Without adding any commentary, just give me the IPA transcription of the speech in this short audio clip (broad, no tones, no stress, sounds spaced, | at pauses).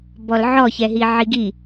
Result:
b ɔ l ʕ ɔ ç ɛ ɦ i ʕ i ɡ i